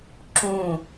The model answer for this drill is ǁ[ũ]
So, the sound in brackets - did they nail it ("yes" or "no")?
yes